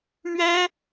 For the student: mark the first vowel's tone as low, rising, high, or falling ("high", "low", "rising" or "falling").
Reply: high